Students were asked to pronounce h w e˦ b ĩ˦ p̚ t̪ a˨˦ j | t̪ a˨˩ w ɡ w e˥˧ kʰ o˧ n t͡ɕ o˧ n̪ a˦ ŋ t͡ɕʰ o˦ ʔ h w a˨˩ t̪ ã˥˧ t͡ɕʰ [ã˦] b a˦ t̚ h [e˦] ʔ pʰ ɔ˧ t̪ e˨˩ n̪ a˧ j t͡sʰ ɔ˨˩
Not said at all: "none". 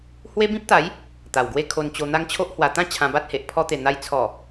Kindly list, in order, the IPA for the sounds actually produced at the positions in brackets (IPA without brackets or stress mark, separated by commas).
ã˧, e˨